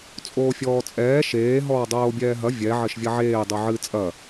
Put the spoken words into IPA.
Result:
t͡sʼoːfʲɔːt͡sʼɛː ʃeː ɦɔːdˤoːbʲɛːɦɐ vʲɛ ʕɘʃvʲɐʕeː dˤuʕɨ t͡sʼɐ

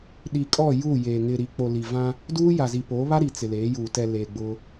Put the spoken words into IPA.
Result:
ɗi˨kʼɔ˦˨ ju˦˨jeː˨ ŋɪ˨ɾi˨k͡po˨ li˨vã˦ | duː˦ ja˨zi˨poː˨˦ βa˦ ɾi˨t͡sɪ˨leː˨˦juː˨ tɛ˨ le˨ɡ͡bʊ˦

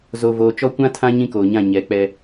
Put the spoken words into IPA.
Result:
zo˨voː˨ t͡ʃɔ˦kʷã˦tʰã˦ ɲĩ˦koː˨ɲã˦˨ ɲɛ˨˦k͡pɛ˦

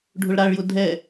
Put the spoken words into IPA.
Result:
ɖʱʊɭɾaɭjʊ dʱɛ

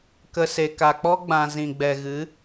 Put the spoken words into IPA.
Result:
kə˧ se˨ka˨k͡pɔ˦ ɡ͡bã˧ zĩ˨ɡ͡bɛ˨ɣɨ˨˦

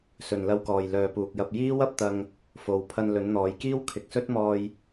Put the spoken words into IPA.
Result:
sɵ˨nlɐ˧wkɔː˨j lœː˨puː˨k̚jɐ˧p̚ jiː˥wɐ˧p̚t̪ɐ˧ŋ | fo˨wpʰɐ˧n lɵ˨˧nn̪ɔː˨˧jkiː˥w kʰɪ˨k̚sɵ˥t̚mɔː˧j

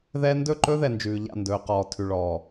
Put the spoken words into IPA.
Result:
ðɛ˦ ndɵ˦˨ǃɵ˦ðɛ˨ nd͡ʒʉː˨ʎa̰˦˨ndɵː˨qɔː˨ tʰʉ˨ɭɔː˨

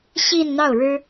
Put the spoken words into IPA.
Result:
ɕi˥˧nn̪ɑ˥˩ʊ̯ɻɻ̩˥

